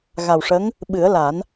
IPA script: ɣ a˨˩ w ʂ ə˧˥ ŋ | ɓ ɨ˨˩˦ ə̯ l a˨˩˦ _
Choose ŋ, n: n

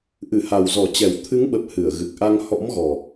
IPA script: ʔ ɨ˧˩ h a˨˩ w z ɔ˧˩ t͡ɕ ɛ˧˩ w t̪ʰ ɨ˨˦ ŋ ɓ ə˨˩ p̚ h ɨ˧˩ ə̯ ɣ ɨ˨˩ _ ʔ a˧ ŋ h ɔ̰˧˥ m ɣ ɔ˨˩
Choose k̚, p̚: k̚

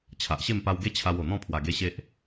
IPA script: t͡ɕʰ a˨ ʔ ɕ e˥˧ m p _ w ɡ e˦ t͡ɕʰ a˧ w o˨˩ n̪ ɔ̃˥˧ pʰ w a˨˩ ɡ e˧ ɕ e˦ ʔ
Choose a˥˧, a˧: a˧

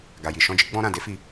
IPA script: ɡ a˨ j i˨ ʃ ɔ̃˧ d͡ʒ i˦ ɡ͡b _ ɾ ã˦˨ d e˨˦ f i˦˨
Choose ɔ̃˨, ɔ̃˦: ɔ̃˦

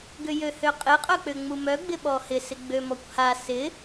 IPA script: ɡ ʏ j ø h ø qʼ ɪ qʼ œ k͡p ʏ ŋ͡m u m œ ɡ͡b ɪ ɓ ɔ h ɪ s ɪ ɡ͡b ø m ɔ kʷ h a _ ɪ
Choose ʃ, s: s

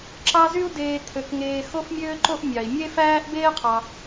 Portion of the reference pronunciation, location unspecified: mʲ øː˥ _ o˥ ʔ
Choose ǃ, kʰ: ǃ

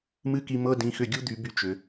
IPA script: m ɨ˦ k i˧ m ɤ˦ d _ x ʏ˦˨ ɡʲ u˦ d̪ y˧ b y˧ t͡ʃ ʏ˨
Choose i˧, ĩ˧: ĩ˧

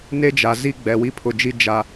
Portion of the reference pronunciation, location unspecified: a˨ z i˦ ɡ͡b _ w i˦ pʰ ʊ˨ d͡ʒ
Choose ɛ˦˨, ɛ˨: ɛ˨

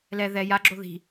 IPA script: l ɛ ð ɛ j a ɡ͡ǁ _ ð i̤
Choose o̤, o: o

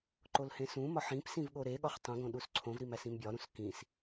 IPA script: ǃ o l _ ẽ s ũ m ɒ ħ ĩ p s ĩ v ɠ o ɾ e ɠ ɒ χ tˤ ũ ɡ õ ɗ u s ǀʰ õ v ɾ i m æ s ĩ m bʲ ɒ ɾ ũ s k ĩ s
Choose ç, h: h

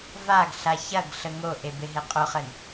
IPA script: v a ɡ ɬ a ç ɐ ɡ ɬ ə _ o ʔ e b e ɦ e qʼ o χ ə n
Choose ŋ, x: ŋ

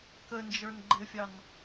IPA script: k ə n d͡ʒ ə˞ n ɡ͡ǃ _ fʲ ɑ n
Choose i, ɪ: ɪ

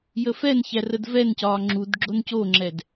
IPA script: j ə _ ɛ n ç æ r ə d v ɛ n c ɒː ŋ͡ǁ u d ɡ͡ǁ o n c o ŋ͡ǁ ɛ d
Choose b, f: f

